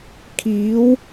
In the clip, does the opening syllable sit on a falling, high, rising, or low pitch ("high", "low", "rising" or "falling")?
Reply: rising